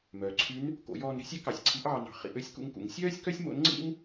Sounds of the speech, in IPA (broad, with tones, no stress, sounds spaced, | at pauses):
m œː˩ ǀʰ y˧˥ n | k o̰˩˧ j ɔː˧ n ɾ e̤˧˥ sʲ ɛ˥ k ɑ˩˧ sʲ ǀʰ i˧˥ ʔ ɑː˧ n ɑ̤˩˧ χ ḭ˩˧ ʔ ø˥ sʲ k ṵ˧ ŋ k ṵ˩˧ ŋ sʲ œː˥ sʲ k œ˥ sʲ m o̰˧˥ n ŋ͡ǀ ḭ˥ m